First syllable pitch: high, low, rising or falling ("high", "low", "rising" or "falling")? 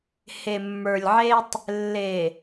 low